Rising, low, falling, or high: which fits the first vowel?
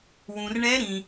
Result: low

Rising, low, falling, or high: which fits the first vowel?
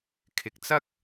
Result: low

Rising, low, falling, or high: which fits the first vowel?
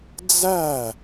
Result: falling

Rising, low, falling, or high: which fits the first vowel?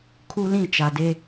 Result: high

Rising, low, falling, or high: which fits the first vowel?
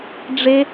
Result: high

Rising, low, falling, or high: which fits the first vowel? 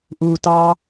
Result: low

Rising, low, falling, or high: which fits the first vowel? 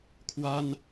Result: high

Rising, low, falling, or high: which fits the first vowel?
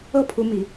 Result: falling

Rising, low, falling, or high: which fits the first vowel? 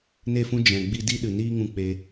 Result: falling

